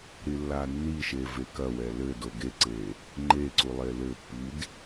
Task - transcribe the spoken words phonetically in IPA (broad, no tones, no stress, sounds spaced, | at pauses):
ɾ i lː a nː i ʃ e v e k ɐ w ɛ l ɘ d o ɡ e ǀ e | ŋ͡ǃ e ǀ u lˠ e l ɘ pː i d